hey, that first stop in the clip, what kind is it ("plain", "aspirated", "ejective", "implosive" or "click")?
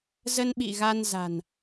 implosive